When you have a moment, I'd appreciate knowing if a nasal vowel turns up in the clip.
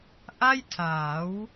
no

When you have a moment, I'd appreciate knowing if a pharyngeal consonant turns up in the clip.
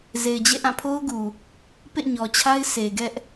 no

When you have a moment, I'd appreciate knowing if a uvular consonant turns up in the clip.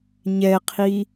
yes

